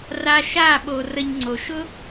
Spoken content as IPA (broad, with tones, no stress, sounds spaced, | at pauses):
r a˧ ʃ a˦˨ ɓ o˨ r ə˧ ɲ ŋ͡ǀ o˨ ʃ ʊ˦